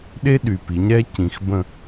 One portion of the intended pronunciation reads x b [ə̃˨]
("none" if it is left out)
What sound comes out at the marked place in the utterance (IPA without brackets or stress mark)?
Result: ə̃˨